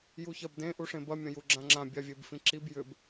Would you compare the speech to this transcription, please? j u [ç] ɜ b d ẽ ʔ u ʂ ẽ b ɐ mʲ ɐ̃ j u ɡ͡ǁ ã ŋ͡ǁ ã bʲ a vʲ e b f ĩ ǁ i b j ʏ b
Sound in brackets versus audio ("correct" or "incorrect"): correct